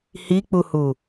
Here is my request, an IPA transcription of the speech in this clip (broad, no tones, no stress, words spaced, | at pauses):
hik͡puhu